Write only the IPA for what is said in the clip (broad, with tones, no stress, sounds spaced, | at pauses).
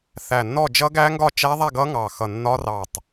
θ æ˧˩ nː ɔ˥˨ d͡ʒ ʌ˦˥ ɡ æ˦˥ ŋ ɡ ɒ˥˨ t͡ʃ æ˦˥ ðˤ æ˥˨ ɡ ʌ˦˥ ŋ ɑ˧˩ x ʌ˧˩ nː ɒ˦˥ r ɑ˧˩ tˤ